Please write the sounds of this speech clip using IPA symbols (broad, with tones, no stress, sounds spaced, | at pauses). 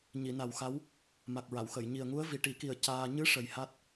ɲ i˨˩˨ n a˨˩ w x a˧˥ w | m a˨˩ k̚ ɹ a˨˩˨ w x ə˨˩˨ j ɲ i˨˩ ə̯ ŋ u˧˥ ə̯ v i˨˩ ʈ i˨˩˦ k i˨˩ ə̯ c aː˧ ɲ ɨ˧˥ ʂ ə˨˩ j h a˦˥ t̚